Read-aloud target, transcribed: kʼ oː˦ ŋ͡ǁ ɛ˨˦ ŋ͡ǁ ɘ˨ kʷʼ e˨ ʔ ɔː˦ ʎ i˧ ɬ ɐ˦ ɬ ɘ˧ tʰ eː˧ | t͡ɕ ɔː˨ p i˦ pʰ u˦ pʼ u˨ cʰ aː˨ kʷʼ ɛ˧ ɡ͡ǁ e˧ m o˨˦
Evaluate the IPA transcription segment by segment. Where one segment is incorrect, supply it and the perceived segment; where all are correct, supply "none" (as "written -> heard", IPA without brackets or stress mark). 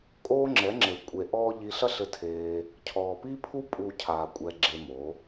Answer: t͡ɕ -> cʰ